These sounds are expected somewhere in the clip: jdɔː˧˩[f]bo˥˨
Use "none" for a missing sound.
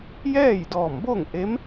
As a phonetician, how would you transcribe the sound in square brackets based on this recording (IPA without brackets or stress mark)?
m